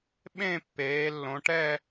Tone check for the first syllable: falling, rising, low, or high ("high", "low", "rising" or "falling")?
falling